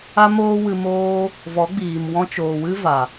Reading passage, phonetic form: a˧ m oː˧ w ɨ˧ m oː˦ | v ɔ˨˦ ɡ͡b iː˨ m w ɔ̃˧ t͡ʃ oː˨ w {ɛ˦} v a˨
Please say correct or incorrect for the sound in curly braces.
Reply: incorrect